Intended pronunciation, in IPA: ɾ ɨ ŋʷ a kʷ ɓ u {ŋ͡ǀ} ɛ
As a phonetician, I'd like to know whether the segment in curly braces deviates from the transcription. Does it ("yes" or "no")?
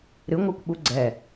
yes